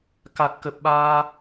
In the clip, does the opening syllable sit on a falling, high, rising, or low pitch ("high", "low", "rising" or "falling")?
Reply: low